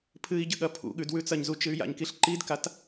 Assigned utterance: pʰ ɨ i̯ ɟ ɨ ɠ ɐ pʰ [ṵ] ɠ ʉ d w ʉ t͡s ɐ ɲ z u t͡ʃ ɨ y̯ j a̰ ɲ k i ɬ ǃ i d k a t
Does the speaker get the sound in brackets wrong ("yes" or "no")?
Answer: no